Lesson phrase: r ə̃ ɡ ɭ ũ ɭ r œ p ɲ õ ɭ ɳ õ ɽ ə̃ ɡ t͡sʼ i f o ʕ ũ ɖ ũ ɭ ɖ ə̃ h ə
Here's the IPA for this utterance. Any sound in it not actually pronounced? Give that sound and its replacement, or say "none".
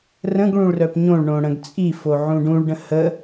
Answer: none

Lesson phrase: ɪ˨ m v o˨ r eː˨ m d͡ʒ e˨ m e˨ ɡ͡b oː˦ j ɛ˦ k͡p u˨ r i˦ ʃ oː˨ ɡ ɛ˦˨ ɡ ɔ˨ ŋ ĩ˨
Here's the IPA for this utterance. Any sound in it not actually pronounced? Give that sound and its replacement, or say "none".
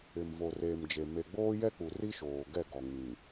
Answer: none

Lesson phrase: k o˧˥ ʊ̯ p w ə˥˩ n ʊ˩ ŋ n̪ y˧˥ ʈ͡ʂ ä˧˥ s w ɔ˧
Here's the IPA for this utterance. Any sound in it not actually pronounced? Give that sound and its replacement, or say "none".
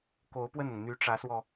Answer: none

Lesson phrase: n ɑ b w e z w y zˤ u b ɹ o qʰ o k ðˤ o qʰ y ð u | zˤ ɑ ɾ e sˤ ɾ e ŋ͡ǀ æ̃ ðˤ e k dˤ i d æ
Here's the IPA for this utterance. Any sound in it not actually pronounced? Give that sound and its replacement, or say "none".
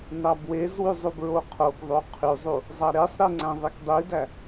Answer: ð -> zˤ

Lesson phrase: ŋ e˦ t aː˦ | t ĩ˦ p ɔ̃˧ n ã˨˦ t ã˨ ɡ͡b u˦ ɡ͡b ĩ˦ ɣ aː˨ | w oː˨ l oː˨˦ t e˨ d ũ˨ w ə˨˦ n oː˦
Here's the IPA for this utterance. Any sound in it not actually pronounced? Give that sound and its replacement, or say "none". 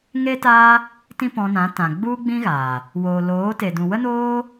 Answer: ə˨˦ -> ə˦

